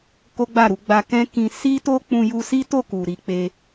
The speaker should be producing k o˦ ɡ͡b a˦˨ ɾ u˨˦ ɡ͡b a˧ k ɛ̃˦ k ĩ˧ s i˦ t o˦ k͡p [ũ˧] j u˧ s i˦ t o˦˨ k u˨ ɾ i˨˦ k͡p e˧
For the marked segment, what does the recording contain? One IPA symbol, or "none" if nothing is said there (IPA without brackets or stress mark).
ũ˧